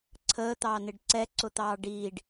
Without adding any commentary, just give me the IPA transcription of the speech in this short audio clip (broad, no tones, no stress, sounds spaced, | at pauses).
ǀʰ əː t̪ ɑː n ɪ ɖ ǀ ɛ ǀ ʊ t̪ ɑː ɖ iː ɖ